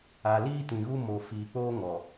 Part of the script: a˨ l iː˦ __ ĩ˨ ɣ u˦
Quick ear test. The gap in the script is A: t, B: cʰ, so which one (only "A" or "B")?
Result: A